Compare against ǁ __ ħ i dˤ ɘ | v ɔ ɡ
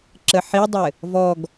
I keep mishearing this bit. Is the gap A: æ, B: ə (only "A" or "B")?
B